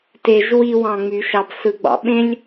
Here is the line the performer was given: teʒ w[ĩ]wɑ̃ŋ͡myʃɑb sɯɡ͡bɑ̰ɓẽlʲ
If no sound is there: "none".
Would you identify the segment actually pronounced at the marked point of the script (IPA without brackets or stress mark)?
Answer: i